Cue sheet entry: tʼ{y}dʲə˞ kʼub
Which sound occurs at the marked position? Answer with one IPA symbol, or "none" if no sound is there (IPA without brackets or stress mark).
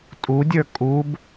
u